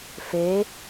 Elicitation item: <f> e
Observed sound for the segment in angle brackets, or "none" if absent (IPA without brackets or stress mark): f